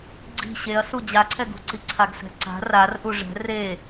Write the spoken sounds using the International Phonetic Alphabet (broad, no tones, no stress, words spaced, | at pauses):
ɡ͡ǀi̤ ɕeɐ̯su d͡ʑaǀʰɛɡṳǀi ǀʰaɡsɛ̤ǀa̤ rarʔu ʐɛ̤ re